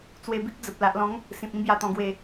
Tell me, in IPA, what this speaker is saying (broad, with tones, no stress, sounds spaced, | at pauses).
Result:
t͡s w e˧ b i˦ k̚ d͡z ə˨ p̚ l a˨ ʔ l ɔ̃˨˦ ŋ | s ĩ˨ p̚ ĩ˦ b j a˨˩ t̪ ɔ̃˨˩ ɡ w e˨˩